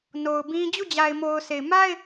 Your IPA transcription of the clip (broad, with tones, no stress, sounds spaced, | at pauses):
n o˨ ʊ̯ b ĩ˦ d͡ʑ u˦˨ d͡ʑ a˨ ɪ̯ m o˨ ʊ̯ sʰ e˨ ɪ̯ m a˦ ɪ̯